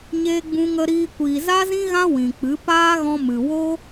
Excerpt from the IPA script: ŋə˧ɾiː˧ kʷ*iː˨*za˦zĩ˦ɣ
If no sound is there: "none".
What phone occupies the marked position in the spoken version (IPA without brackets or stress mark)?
iː˨